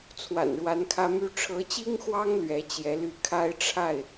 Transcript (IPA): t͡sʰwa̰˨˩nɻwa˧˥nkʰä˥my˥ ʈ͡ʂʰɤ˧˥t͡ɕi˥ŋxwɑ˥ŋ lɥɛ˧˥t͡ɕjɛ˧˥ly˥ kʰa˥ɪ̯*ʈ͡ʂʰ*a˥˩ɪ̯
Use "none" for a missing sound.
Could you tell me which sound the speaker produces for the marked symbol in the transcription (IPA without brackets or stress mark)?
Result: ʈ͡ʂʰ